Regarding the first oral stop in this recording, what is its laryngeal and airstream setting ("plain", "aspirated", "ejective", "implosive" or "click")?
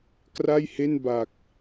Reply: plain